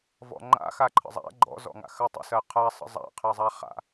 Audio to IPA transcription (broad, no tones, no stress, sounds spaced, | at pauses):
v ɔ̰ ŋ͡ǃ a̰ x a ǃʰ ə̰ zˤ a̰ ɡ͡ǃ ɔ̰ z ɔ̰ ŋ a̰ x ɜ tˤ ə̰ s ɜ qʰ a sˤ ə̰ zˤ a̰ qʰ ɛ zˤ a χ a̰